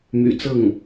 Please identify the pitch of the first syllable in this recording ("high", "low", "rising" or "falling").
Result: low